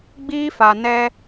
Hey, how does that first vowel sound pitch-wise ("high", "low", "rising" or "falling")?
high